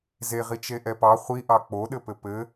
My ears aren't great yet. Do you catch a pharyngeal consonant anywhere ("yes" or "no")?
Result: no